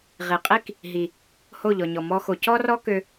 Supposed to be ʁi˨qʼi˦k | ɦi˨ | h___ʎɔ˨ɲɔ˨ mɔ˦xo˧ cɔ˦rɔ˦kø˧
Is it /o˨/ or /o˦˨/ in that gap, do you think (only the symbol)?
o˦˨